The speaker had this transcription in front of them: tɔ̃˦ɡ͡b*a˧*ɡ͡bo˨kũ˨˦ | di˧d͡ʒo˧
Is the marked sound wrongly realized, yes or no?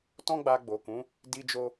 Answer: no